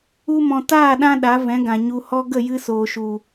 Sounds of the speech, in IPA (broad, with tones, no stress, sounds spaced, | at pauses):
u˧ m ɔ̃˨ t aː˦˨ ɗ ã˧ ɗ a˨˦ v ɛ̃˨˦ ɡ ã˨ ɲ u˨ h ɔ˧ ɡ ə˦˨ j ɨ˧ s oː˨ ʃ u˨